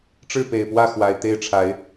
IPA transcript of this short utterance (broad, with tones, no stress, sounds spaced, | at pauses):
ʈ͡ʂ ɻ̩˥˨ p e˨˩ ɪ̯ p w ä˥˨ x w a˨˩ ɪ̯ t̪ e˥˨ ɪ̯ ʈ͡ʂʰ a˨˦ ɪ̯